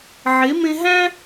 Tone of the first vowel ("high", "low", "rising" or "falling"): rising